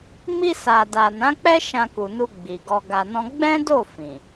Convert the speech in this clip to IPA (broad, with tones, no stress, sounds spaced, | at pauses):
m i˧ s a˨ d a˨ n ã˨˦ k͡p ɛ˦ ʃ ã˧ k u˨ n u˧ ɡ͡b i˨ ɡ ɔ˧ ɡ a˧ n ɔ̃˦ ɡ͡b ɛ̃˦ d o˦˨ f ĩ˨